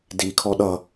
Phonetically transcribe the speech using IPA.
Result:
d i kʰ ɔ ɗ ʌ

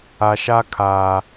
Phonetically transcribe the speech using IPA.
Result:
a˨ ʃ a˦ kʰ aː˨

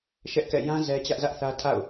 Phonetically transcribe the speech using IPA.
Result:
ʃ ɛ˦ ʔ k ɛ̰˦˨ j ã˦ z ɛ˦ t͡ɕ ä˦ ʔ z ä˦ ʔ θ ä˦ tʰ a̰˦˨ ʊ̯

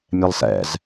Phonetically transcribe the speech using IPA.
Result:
mʲ ɛ lˠ s ɛ̰ z

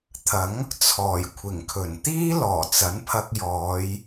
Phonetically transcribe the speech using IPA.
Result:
t̪ʰ ɐ˨˥ ŋ | t͡sʰ ɔː˨˩ j kʷʰ ɪ˨˩ ŋ kʰ ɵ˨˩ n t̪ iː˥ l ɔː˨˩ t͡s ɐ˨˥ n pʰ ɐ˧ k̚ j ɔː˨˧ j

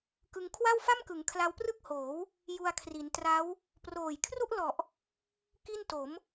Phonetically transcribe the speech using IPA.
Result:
k ɯ˧ ŋ kʰ w a˥˩ w f a˥˩ m k ɯ˩˦ ŋ kʰ l a˦˥ w p r ɯ˥˩ k̚ h oː˩˦ w | j u˧ a̯ kʰ r i˩˦ n t r a˦˥ w | p r oː˨˩ j kʰ r u˥˩ ʔ l ɔ˨˩ ʔ | k i˥˩ n t o˩˦ m

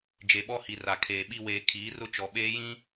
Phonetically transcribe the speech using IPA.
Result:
d͡ʒ e˨ ɓ ɔ˦ h i˨ r a˨ kʰ eː˨ ɓ i˦ w eː˨ kʰ iː˨˦ r ʊ˦ t͡ʃ ɔ˨ ɓ eː˦ j ĩ˦

